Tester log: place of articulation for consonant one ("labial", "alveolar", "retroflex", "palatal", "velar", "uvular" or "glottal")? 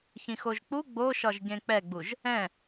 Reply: palatal